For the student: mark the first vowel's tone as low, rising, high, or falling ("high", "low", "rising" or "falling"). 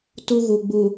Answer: high